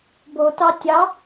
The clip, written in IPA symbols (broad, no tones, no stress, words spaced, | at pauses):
botɑ tʲɑ